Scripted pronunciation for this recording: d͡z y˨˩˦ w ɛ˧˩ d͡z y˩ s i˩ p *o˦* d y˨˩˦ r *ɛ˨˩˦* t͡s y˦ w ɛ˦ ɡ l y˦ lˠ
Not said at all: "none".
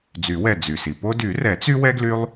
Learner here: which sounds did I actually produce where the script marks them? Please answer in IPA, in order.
o˦, ɛ˨˩˦

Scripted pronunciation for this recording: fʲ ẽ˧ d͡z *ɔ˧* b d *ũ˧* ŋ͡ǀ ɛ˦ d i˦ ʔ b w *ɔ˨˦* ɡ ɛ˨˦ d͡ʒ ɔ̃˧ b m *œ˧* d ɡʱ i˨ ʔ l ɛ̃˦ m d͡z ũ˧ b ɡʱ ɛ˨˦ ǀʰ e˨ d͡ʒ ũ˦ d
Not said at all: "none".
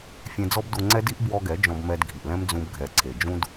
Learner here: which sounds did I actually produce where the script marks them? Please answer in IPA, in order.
ɔ˦, u˧, ɔ˧, ɛ˧

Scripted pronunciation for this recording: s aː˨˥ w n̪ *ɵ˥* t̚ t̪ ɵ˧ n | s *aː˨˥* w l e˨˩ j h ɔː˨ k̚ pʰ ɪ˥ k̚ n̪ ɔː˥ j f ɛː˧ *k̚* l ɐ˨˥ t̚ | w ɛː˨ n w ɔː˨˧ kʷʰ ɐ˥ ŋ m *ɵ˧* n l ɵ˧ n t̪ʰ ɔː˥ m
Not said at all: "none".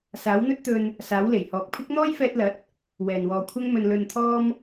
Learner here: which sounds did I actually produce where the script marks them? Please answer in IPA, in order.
ɵ˥, aː˨˥, t̚, ɵ˧

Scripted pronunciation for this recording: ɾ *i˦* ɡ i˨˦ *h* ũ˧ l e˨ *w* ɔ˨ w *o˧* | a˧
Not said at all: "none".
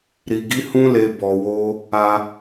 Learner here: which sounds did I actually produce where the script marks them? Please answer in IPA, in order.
i˨, h, b, o˧

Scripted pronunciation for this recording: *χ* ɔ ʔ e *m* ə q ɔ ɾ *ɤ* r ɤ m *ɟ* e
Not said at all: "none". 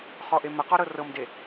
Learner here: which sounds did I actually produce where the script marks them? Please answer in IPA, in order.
χ, m, ɤ, d

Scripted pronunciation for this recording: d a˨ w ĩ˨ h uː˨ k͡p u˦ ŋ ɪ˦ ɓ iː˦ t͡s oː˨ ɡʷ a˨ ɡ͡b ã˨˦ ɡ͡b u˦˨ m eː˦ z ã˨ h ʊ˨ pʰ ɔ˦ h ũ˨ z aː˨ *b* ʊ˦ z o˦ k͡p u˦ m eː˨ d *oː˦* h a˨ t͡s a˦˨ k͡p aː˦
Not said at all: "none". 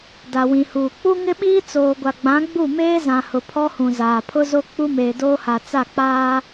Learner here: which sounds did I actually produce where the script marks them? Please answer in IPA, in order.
pʰ, oː˦

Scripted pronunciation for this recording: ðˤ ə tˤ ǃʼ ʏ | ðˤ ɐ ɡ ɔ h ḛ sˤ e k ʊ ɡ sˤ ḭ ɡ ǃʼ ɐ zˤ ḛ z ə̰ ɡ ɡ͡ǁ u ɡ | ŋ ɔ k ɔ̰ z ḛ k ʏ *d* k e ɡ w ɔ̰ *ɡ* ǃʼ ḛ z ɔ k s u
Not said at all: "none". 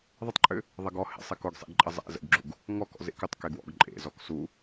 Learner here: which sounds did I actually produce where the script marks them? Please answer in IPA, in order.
tˤ, ɡ

